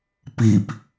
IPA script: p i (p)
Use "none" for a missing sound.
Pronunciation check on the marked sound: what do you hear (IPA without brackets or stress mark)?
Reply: p